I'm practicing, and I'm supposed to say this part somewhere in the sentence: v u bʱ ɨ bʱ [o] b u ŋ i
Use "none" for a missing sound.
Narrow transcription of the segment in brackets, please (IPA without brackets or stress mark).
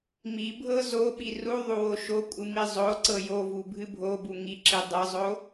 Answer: o